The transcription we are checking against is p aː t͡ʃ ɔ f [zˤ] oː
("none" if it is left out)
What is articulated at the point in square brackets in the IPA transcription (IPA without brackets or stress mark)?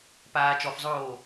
zˤ